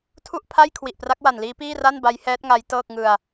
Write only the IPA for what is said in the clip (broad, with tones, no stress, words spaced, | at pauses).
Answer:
tʰu˥˩ʔpʰa˥˩j kʰwi˨˩ʔpra˦˥k̚wa˨˩nliː˦˥ piː˥˩ra˥˩nba˦˥j hɛː˦˥t̚ŋa˦˥j tɤː˥˩k̚ŋɯ˧a̯